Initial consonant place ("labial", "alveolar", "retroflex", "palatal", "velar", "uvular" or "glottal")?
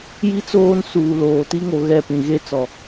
palatal